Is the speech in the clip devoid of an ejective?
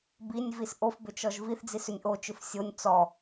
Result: yes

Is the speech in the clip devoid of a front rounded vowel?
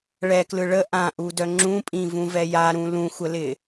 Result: no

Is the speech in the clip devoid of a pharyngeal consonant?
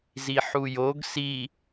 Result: no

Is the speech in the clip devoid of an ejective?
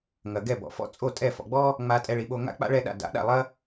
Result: no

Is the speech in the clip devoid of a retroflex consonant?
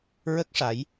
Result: no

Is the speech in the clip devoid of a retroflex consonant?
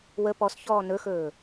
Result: yes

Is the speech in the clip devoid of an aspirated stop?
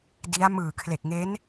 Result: no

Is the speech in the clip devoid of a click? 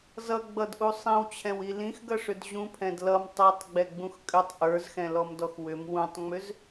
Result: yes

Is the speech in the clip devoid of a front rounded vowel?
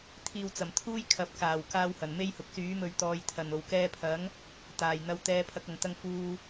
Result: no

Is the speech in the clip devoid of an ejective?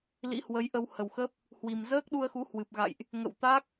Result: yes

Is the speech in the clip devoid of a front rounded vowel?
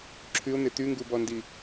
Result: no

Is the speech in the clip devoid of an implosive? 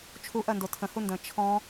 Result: yes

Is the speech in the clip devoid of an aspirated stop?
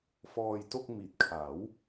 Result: no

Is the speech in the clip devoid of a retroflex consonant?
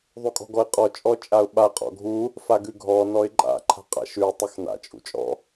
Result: yes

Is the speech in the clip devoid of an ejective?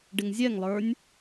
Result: yes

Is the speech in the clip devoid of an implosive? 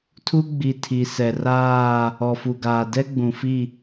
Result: yes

